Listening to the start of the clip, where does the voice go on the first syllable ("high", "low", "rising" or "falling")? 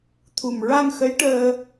low